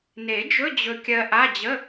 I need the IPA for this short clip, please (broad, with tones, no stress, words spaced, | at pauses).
ne˨˩˦ d͡ʒɵ˧˥˧ d͡ʑɵ˧kʲɜ˧ʔa˧˥˧ d͡ʑə˧˥˧